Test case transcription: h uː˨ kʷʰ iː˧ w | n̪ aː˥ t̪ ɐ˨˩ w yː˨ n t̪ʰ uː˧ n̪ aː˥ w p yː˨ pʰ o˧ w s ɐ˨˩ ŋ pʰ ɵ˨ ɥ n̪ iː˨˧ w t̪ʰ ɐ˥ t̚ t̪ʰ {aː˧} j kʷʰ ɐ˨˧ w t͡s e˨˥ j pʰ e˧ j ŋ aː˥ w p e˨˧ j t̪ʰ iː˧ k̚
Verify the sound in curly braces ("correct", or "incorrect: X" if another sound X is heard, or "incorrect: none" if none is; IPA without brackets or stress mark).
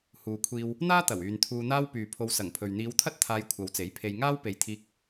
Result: correct